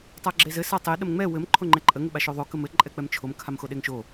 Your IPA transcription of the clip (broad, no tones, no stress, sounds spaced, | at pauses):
tˤ a ɡ͡ǁ e z ɘ s a tˤ e ɗ ə m ŋ͡m ɛ w ɘ m ǃʰ o ŋ͡ǃ ɛ ǃʼ ə ŋ ɘ ɓ a ʃ o ðˤ o k ə m ɘ ǃʼ ɛ k͡p ɛ m t͡ʃʰ o m kʰ a m x o ɗ e ŋ ʃ o